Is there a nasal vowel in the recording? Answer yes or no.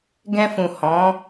yes